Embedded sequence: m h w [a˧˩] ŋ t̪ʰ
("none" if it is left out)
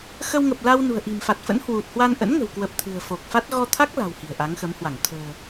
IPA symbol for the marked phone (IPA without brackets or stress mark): a˧˩